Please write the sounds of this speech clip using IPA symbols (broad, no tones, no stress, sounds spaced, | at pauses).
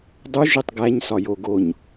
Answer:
dˤ u ʒ i tˤ ɡ æ ɲ s ɒ j o ɡ o ɲ